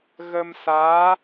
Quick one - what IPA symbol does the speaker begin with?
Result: ɣ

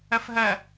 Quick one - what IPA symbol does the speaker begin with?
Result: ɐ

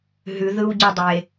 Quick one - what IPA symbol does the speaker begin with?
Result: ɦ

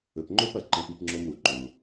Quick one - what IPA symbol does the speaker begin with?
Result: ɵ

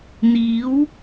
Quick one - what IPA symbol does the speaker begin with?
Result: n̪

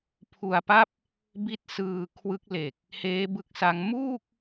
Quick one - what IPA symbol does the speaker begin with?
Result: pʰ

